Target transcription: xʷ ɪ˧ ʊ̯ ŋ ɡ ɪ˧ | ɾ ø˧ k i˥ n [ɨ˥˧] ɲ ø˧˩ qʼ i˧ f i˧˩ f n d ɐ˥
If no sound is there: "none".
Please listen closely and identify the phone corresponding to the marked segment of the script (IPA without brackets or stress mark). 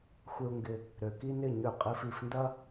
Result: ɪ˥˧